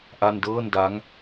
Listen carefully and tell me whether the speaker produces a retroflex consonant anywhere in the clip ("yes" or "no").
no